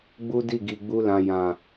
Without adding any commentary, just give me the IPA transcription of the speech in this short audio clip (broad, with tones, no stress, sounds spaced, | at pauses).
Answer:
ɡ͡b u˦ d i˦˨ ɡ i˨ ɡ͡b u˧ l ã˨ j ã˨